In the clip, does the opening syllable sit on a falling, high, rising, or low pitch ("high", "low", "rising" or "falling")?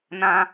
low